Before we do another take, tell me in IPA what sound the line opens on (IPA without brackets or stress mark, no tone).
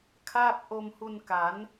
kʰ